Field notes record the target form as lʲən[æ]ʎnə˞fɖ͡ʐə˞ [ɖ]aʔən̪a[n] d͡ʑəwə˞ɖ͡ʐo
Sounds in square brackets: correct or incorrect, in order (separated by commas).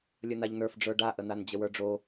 incorrect, correct, correct